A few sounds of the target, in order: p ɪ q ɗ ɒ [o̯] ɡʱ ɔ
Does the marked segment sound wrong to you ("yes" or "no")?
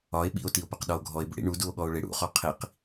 no